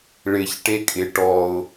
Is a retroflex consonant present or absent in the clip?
present